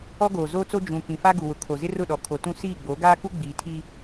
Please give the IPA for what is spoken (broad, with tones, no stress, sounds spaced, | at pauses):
ɔ˦ ɡ oː˨ z oː˦ t͡s o˦ d͡ʒ ũ˨ k ĩ˨ f a˦ ɡ u˨ w ʊ˨ kʰ o˨ z ɪ˦ r ʊ˦˨ ɗ ɔ˨ kʰ o˨ t ũ˦ s iː˦˨ ɡ͡b o˨˦ ɡ aː˦ k u˦ ɡ͡b iː˨ tʰ iː˦